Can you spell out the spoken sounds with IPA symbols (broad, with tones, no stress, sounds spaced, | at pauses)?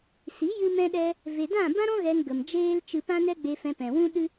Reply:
s i˨˦ j ɨ˧ m ɛ̃˧ ɗ ɛ˧ | v e˨ d ã˦˨ b ã˦ ɾ ɔ̃˦ ɣ ɛ˧ ŋ ɡ ə˨ m d͡ʒ eː˦ l t͡ʃ ɨ˧ p ã˦ n ɛ˦ ɡ͡b e˧ f ɛ̃˧ p ɛ̃˨ w ũ˦ ɗ ɨ˦